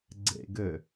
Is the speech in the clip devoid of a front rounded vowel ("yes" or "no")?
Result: no